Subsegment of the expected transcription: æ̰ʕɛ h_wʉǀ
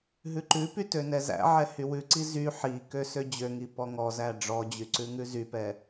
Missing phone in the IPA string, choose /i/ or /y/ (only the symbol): y